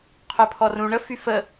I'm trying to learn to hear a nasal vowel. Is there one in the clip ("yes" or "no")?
yes